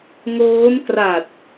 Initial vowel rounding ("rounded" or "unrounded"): rounded